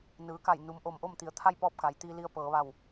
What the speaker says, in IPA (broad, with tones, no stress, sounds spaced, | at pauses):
n ɯː˩˧ k a˧˩ j n u˩˧ m ʔ o˩ m ʔ o˥˨ m t̪ i˩ ə̯ t̪ʰ a˥˨ j p ɔː˥˨ p̚ k a˩˧ j t̪ iː˧ l i˧ ə̯ p ɤː˩˧ ʋ a˧˩ w